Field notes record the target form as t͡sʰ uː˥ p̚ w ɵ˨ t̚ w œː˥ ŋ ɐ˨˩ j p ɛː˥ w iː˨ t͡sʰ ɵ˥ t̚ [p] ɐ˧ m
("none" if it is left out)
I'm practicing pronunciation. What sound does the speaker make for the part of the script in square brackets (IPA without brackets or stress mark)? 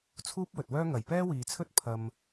pʰ